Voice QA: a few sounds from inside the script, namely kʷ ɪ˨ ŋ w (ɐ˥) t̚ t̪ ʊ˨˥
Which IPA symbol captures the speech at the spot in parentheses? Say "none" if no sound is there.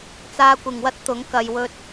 ɐ˥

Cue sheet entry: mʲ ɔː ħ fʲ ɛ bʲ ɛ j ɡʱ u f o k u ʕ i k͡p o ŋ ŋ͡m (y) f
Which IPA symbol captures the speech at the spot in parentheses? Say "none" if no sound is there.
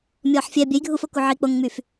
y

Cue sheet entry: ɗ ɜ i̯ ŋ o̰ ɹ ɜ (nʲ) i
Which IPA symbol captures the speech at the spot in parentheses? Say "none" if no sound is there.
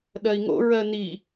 n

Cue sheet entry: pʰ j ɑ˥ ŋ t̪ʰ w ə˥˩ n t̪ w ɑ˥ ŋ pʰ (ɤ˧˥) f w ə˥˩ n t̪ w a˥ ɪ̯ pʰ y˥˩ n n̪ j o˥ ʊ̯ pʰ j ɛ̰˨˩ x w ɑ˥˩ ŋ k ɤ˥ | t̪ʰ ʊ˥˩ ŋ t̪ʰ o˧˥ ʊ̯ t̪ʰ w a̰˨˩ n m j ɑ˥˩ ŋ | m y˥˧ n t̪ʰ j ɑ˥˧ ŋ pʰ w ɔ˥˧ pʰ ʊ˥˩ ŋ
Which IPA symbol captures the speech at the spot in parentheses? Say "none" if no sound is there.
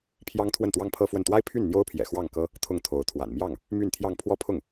ɤ˥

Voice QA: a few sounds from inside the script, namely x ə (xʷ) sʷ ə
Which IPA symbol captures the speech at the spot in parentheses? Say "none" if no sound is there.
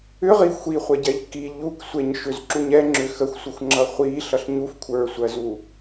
xʷ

